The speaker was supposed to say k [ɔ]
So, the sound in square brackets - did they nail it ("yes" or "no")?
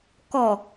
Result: yes